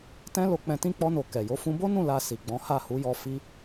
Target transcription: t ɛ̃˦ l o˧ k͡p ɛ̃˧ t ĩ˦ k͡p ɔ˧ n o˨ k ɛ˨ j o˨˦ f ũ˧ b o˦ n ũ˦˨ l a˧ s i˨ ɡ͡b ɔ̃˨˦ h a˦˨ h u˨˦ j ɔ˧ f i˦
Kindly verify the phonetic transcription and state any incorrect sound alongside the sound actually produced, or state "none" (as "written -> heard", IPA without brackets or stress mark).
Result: none